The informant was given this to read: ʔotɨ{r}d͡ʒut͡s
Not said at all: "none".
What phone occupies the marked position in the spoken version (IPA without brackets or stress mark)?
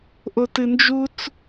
n